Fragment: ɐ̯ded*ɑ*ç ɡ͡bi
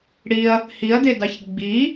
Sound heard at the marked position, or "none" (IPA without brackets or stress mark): ɑ